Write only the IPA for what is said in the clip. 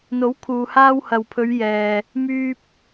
n̪ o˨˥ w kʰ uː˨ h aː˧ w h ɐ˨ w pʰ ɵ˨˧ ɥ j ɛː˨ | m yː˧ p̚

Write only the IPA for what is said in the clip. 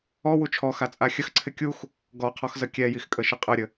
ɔ w u t͡ʃʰ ɔ x a t͡sʼ a xʲ ə x ǀʰ ɪ kʲ u x | ɡ ɔ qʰ ɔ x z ə kʲ ɛ j i x kʼ ə ʃ ɪ qʼ ə ɾʲ ə

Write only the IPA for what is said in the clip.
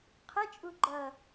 qʰ ɪ t͡ʃʼ u ɡ͡ǃ ʌ

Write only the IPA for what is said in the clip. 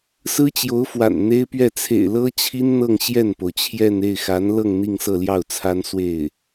s ɹ̩˥ t͡ɕ j o˧˥ ʊ̯ f w a̰˨˩ n n̪ e˥ ɪ̯ p ɥ ɛ˥˩ t͡sʰ ḛ˨˩ ɪ̯ l ɤ˥ t͡ɕʰ i˥ n n̪ ɤ˥˧ ŋ ɕ j ɛ˥˩ n p o˩ ʊ̯ t͡ɕʰ j ɛ˥˧ n e˥˩ ɪ̯ x a˧˥ n l ɤ˥˧ ŋ n̪ i˥˧ ŋ s ɤ˥˧ l j ɑ˥˩ ʊ̯ t͡sʰ a˥ n s w e˥˩ ɪ̯

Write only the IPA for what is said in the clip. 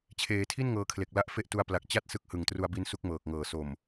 t͡ɕʰ eː˩˦ tʰ i˥˩ n ŋ ɤː˧ kʰ l e˨˩ k̚ l a˦˥ ʔ f e˥˩ ʔ t u˦˥ a̯ p l a˨˩ k̚ t͡ɕ a˥˩ t̚ s ɯ˦˥ k̚ h ɯ˨˩ ŋ t r u˧ a̯ b i˦˥ n s u˦˥ k̚ m ɤː˨˩ k̚ ŋ ɤː˨˩ s o˨˩ m

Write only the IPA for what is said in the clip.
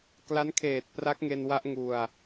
k l a˦˥ n kʰ eː˨˩ t̚ p r a˦˥ k̚ ŋ e˧ n w a˦˥ ʔ ŋ u˧ a̯

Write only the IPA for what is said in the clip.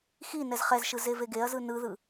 x i n ɛ z χ ɛ z ʃ ɯ z e v e ɡ e ɐ̯ z ɯ n ɯ ð ɯ

